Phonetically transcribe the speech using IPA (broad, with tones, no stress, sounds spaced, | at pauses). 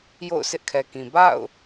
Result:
j o̰˦˨ ʊ̯ sʰ ɪ˦ ʔ kʰ ɛ˨ k ĩ˨ b a̰˦˨ ʊ̯